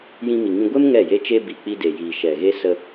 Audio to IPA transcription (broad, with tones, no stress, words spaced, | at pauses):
jĩ˧mi˨ŋĩ˧ ɡʷe˦m ŋɛ˦˨je˦t͡ʃe˦ bi˨k͡pi˧de˨ jiː˨ ʃɛ˨ɣe˦ sə˧